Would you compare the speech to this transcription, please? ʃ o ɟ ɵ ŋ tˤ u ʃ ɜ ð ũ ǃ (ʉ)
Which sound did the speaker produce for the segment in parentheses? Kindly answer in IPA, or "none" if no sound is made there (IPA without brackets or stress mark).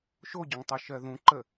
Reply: ə